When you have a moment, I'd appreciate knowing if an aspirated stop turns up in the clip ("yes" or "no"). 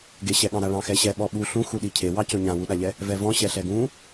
yes